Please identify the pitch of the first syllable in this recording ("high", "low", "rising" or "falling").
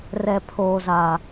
low